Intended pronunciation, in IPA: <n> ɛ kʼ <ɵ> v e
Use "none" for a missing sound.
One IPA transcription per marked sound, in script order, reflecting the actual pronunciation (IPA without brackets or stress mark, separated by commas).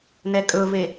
n, ɵ